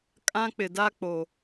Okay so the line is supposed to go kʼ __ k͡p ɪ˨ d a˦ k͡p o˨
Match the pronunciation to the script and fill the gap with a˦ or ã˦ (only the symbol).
ã˦